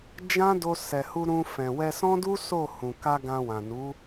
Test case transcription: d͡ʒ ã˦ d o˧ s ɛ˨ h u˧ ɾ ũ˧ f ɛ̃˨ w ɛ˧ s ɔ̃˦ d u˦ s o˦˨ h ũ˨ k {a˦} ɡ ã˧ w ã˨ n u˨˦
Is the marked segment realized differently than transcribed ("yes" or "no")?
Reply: yes